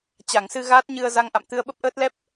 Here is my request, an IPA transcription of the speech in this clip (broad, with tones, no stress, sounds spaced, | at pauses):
t͡ɕ a˧˩ ŋ s ɨ˧ ɣ aː˦˥ t̚ ɲ ɨ˧ ə̯ z a˧ ŋ ʔ a̰˧˨ m t̪ ɨ˧ ə̯ ɓ ə˦˥ p̚ ʔ əː˦˥ t̚ l ɛ˦˥ p̚